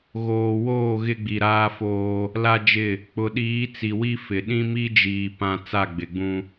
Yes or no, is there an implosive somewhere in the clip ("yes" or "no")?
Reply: yes